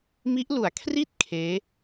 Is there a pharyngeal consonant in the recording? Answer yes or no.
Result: no